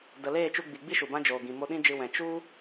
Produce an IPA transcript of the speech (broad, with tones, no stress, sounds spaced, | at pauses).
d ə˨ l eː˦˨ t͡ʃ u˧ ɡ͡b i˨ ɡ͡b i˦ ʃ u˨ b ã˦ d͡ʒ oː˨ ɡ ĩ˨ m o˧ ɗ ĩ˦ d͡ʒ ɨ˧ w ɛ̃˨ t͡ʃ u˦